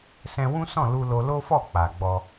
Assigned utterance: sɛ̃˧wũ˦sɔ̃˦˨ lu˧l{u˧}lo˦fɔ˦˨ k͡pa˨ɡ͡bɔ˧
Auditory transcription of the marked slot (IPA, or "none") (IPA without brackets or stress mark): o˧